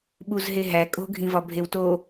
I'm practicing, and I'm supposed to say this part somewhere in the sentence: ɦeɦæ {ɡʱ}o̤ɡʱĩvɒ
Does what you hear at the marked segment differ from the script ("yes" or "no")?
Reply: yes